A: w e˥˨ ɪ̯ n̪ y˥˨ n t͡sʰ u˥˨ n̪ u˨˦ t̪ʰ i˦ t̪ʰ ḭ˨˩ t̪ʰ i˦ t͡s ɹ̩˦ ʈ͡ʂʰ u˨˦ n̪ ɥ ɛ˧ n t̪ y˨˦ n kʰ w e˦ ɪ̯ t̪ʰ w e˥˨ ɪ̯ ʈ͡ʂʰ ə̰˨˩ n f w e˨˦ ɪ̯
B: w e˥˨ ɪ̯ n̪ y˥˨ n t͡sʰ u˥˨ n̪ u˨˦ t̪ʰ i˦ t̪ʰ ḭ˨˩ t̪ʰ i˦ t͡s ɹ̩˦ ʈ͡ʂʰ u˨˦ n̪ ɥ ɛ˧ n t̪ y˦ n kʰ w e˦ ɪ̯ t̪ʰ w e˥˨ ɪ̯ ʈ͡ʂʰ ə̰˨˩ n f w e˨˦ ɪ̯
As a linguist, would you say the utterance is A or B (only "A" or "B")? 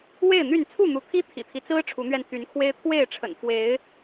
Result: A